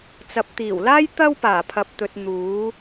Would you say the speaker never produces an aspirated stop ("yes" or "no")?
no